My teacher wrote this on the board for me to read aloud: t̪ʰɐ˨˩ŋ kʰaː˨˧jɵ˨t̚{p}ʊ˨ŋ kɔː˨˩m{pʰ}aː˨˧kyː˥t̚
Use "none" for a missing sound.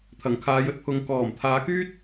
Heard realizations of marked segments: pʰ, t̪ʰ

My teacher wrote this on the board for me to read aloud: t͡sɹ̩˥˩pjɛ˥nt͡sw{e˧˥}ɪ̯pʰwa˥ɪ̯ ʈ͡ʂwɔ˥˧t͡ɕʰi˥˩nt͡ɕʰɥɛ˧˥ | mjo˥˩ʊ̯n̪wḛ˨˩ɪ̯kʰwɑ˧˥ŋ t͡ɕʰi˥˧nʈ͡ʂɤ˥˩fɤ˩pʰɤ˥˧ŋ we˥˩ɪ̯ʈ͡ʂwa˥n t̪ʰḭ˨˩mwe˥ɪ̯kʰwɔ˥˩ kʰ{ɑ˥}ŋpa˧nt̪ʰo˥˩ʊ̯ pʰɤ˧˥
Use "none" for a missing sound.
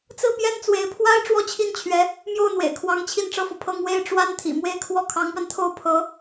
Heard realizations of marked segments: e˧˥, ɑ˧˥

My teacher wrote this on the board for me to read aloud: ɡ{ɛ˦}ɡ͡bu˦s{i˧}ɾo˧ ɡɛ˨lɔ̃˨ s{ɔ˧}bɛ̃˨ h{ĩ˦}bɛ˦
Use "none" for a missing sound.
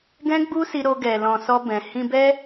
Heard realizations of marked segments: ɛ̃˦, i˧, ɔ˧, ĩ˧

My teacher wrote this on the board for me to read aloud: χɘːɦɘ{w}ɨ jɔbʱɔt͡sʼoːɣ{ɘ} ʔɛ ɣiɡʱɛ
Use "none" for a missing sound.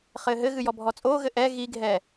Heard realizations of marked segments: ɣ, ɘ

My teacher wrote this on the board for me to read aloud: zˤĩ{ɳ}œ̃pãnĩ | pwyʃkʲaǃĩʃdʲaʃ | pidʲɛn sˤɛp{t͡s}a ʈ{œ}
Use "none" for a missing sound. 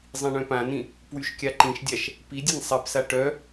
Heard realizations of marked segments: ɳ, s, œ

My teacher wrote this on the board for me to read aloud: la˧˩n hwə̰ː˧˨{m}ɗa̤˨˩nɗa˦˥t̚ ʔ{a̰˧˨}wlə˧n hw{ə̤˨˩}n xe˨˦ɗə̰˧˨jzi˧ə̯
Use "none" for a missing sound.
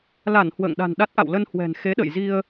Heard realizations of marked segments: ŋ, a̰˧˨, ɛ̤˨˩

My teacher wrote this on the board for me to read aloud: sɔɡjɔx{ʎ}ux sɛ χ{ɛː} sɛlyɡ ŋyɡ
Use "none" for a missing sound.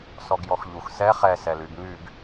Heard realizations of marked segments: ʎ, ɛ

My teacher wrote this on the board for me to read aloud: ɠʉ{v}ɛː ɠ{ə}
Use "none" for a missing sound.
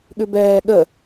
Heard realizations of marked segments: b, ə

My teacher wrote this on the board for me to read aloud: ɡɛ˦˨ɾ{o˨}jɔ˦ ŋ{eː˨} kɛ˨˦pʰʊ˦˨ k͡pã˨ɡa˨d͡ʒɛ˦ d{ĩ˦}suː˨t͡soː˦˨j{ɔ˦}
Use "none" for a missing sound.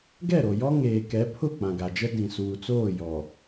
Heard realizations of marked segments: o˨, eː˨, ĩ˨, ɔ˨

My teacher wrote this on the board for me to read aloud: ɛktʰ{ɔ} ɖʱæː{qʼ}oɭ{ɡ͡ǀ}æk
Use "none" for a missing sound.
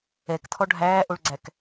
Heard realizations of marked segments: ɔ, ʔ, ɡ͡ǀ

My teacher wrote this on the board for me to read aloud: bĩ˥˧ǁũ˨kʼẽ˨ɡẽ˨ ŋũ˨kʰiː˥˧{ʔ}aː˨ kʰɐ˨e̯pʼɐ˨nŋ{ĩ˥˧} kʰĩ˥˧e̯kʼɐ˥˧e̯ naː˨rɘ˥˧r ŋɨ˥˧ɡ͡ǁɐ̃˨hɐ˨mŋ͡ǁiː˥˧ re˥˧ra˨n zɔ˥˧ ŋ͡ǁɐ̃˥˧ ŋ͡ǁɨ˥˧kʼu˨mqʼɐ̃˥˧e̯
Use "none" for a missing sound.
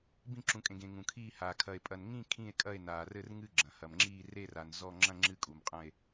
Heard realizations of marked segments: h, ĩ˥˧

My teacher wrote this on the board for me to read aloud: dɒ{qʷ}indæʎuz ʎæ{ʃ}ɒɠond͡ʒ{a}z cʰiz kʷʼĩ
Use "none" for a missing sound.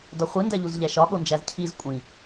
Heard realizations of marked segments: χʷ, ʃ, æ

